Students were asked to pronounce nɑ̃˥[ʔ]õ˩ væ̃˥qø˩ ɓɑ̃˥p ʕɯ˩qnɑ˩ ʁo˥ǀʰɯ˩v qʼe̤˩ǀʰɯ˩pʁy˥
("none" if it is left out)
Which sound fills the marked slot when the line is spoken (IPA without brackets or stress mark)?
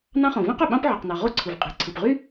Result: χ